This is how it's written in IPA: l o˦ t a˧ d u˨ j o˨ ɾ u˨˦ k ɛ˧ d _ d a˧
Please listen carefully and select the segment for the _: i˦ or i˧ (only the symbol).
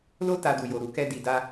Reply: i˧